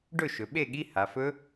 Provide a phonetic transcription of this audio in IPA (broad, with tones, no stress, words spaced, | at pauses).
ɖɵ˥˨ʃɵ˩˧ ɓe˥˨ɠi˧˥˧ ha˩˧fɵ˦˥